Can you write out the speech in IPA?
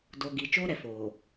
d oː˨ ɡ i˨ t͡ʃ oː˦ ɾ ɛ˨ f oː˨

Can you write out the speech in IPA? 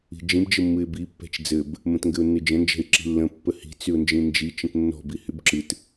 i̤ d͡ʒ ĩ b d͡ʒ ɘ mː ɨ ɪ̯ b i pː ɛ̤ t͡ʃ d͡z ɘ b | m ə̃ t ŋ ɡ ɘ ʊ̯ nː ɨ d͡ʒ ə̃ n d͡ʒ ɛ̤ ɪ̯ ǁ i̤ lː ə̃ pː ə h i̤ t͡s y ʊ̯ n d͡ʒ ĩ n d͡ʒ i t͡ʃ ə̃ t nː ɔ̤ b i h y b ǁ ɨ t

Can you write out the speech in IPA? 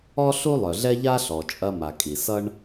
ɔ˥ ɬ u˥ lˠ œ˩ ɮ ɛ˥ ʎ a˥ ɬ ɔ˩ t͡ʃʼ ɐ˥ m a˩ kʼ i˩ s ʌ˥ ɳ

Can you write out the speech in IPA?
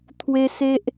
t̪ʰ w e˦ s e˦ ʔ

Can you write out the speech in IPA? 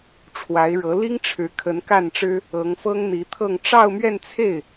ʈ͡ʂʰ w a˧˥ ɪ̯ ɻ ɤ˧˥ l i˥ ŋ ʈ͡ʂʰ ɻ̩˧˥ kʰ ə˧˥ n k a˥˩ n ʈ͡ʂ ɻ̩˥ | ɤ˧˥ ŋ f ɤ˥ ŋ n̪ i˧˥ t̪ʰ ɤ˥˧ ŋ ʈ͡ʂ ɑ˥˧ ʊ̯ m ɥ ɛ˥˧ n t͡sʰ e˥˩ ɪ̯

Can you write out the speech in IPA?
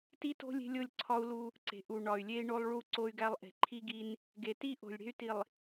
t i˦ t o̤˦ lʲ e̤˦ lʲ o˦˨ lʲ ǀʰ ɒ˦ u̯ l u˦ | ǀ e̤˨ ʔ u˨ ɳ ɒ˨ y̯ lʲ e˦ i̯ ɳ o˦ lˠ ɭ u˦˨ ǀ o˦ y̯ ɡ æ˦ lˠ ʔ e̤˨ ǃʰ i˦ ɡ i˦ n | ɡ e˨ t i˦ ʔ o̤˨ lʲ ɽ e̤˦ y̯ t i˨ lˠ

